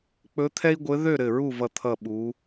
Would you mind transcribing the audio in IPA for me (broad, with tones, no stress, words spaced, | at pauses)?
k͡pɵ˧˥t̪ʰɛ˥i̯ɡʷɘ˧˥ ðø˥˨ ɾɘ˧˩ɹu˥˨vʌ˧˩t̪ʰʌ˧˩ ɓu˩˧